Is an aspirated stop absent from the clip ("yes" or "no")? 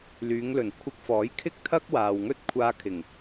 no